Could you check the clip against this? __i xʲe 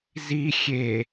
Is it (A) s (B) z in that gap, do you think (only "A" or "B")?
B